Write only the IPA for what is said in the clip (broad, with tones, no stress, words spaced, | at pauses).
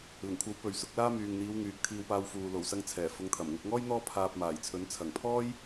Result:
lɪ˨˩ŋkʷʰɐ˨˥w pɵ˨ɥsʊ˨˥k̚laː˥ myː˨ŋn̪iː˨˧w ŋyː˨k̚t̪ʰiː˧wpaː˧wfuː˨ lo˨˩wsɐ˧ŋt͡sʰɛː˨˩ fʊ˨˧ŋt̪ʰɐ˨˩mŋʊ˧k̚ŋɔː˥j n̪ɔː˥ pʰaː˨p̚ maː˨˩jt͡sʰɵ˨˥n t͡sʰɐ˨˩ŋpʰɔː˥j